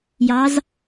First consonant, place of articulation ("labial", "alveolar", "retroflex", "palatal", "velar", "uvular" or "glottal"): palatal